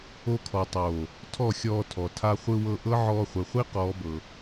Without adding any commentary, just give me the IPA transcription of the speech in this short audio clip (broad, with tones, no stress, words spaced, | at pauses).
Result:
o˧kʰɔ˨tˤoː˨ | tʰɔ˦˨xʲɔː˧tʰɔ˨ tʰa˧χʷɯ˧wɤ˧ʔɤ˦ ʕɔː˧χʷɯ˨χʷi˦ qɔː˦bɤ˧